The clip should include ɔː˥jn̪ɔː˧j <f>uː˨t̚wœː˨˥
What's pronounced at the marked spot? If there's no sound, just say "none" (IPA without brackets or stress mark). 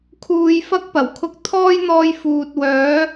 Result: f